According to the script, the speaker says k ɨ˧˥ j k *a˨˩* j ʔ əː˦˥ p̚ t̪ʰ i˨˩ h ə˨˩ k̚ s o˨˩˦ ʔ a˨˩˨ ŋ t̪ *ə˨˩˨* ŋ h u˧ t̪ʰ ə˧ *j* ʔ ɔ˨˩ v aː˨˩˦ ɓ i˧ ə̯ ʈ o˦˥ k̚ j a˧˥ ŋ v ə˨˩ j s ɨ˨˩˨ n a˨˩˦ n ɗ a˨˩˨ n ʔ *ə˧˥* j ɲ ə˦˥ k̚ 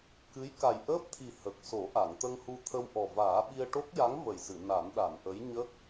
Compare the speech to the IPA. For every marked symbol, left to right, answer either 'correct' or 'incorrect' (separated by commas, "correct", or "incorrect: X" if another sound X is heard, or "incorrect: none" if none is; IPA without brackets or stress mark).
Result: correct, incorrect: ə˧, incorrect: w, correct